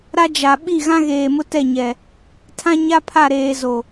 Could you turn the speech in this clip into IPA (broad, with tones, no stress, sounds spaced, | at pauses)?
ɾ a˦ d͡ʒ a˨ ɓ i˦˨ ɣ ã˦ ɣ eː˨ m ʊ˦ t ɛ˦˨ ɲ ɛ˨ | tʰ ã˦ ɲ a˦ pʰ a˦˨ ɾ eː˨ z o˨